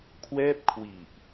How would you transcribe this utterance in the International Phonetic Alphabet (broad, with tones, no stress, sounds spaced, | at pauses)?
kʰ w ɛː˥˩ p̚ kʰ w i˨˩ ʔ